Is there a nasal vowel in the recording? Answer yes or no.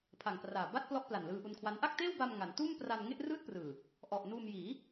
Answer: no